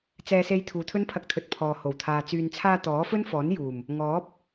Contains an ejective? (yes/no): no